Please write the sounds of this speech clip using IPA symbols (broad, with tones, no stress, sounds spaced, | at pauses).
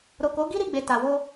ɾ o˨ k o˨˦ ɡ i˦ ɾ i˧ ɡ͡b e˨ t a˨ w o˧